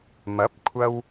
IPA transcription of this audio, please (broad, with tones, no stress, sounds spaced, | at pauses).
m ɐ˨˥ p̚ kʷʰ ɐ˧ w